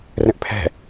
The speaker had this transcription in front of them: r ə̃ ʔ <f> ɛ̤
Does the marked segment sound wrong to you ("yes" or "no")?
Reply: yes